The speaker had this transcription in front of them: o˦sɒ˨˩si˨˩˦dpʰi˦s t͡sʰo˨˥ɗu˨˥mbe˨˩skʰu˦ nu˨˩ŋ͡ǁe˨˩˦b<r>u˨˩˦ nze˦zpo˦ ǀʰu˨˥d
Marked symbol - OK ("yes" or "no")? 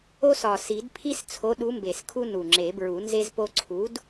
no